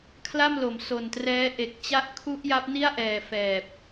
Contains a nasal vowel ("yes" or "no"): no